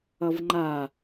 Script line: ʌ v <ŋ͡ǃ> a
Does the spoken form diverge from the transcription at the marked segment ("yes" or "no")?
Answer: no